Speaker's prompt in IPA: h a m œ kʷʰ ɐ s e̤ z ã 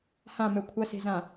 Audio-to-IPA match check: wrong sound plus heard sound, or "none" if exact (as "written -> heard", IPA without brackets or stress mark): a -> ã